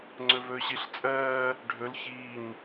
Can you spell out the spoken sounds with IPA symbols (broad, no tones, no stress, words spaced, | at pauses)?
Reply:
ŋ͡ǀɵvɵːɕiɬ t͡sʼɜː | ɖʱɵl çiːɲ